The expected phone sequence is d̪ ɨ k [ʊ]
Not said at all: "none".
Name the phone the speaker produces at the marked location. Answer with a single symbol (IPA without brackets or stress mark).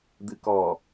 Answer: ɔ